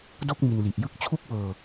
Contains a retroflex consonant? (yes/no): no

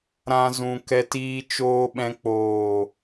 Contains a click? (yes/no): no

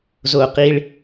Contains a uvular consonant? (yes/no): yes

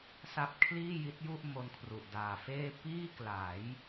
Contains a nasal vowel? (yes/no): no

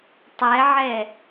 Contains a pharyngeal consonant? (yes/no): yes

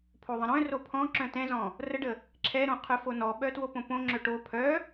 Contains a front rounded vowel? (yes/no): yes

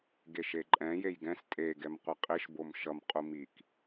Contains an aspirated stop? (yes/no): no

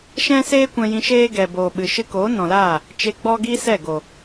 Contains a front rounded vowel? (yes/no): no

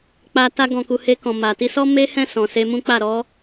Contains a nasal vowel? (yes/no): yes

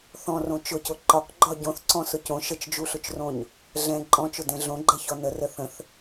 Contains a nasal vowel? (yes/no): yes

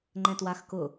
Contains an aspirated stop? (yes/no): no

